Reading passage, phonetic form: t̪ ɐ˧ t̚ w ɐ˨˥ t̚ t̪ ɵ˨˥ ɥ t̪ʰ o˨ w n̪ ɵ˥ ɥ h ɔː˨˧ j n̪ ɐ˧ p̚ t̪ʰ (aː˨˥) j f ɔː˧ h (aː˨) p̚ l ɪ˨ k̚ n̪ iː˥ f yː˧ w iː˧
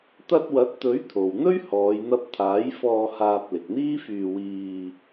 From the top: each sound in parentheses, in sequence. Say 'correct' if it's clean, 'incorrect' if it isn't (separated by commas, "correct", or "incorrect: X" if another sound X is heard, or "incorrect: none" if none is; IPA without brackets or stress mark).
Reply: correct, incorrect: aː˧